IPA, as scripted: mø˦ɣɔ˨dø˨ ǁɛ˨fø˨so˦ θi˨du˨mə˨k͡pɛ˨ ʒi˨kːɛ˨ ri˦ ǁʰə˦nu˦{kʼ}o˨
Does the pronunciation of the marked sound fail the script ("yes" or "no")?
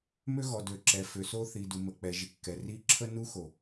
yes